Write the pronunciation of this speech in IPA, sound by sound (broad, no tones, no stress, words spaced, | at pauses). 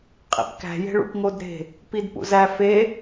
qʼḭpkæ̤je̤ ɭṵpŋodɾe̤ | pidpṵzæ fe